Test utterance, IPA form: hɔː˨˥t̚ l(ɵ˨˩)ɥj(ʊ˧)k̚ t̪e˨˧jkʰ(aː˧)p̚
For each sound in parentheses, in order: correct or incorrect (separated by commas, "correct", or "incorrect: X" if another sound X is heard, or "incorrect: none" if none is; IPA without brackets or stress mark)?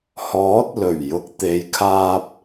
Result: correct, correct, correct